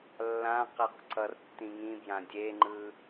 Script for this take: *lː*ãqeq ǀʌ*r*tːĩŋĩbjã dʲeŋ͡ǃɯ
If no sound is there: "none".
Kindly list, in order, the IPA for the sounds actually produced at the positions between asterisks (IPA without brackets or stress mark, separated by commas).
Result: lː, r